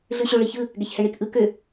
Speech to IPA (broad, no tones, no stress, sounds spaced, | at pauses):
ɮ ɯ ɕ ø ɭ i ç ɯ | ɡ ɛ ç h ɛ ɳ i k ʔ ɯ k ø